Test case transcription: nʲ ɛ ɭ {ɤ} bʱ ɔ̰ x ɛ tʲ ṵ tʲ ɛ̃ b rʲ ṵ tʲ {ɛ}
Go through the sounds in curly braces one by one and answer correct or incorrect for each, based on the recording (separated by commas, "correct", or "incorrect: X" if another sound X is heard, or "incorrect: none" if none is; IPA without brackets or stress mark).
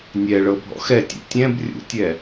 correct, correct